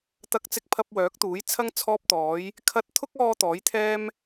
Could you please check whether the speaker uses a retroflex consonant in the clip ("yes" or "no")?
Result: no